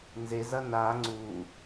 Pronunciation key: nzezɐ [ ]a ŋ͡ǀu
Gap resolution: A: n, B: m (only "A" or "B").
A